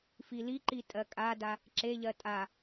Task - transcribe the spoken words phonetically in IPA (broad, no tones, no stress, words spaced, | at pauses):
filiǃi tʼɜkʼada | ǁeʎɜ tʼa